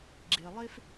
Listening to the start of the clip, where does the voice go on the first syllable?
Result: low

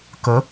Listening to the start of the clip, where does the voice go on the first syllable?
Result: rising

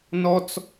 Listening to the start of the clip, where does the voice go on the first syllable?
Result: high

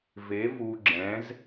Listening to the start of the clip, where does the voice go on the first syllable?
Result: rising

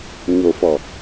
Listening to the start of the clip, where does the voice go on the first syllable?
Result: low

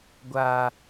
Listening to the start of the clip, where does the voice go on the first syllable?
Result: low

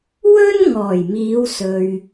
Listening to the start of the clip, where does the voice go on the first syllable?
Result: high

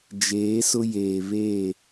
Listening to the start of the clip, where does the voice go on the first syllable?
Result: rising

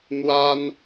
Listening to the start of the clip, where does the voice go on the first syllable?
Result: high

